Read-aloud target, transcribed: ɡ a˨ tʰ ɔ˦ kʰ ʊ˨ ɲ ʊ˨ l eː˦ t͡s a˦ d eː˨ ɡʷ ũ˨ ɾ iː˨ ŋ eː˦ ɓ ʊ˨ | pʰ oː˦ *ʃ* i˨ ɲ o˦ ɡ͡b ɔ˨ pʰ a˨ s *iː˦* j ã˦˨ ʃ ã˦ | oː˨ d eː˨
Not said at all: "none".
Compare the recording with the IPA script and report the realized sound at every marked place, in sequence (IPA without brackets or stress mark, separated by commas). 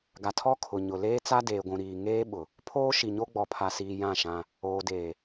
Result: ʃ, iː˨